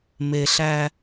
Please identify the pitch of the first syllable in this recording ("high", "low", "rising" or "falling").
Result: low